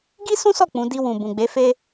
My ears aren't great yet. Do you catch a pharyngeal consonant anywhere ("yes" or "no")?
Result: no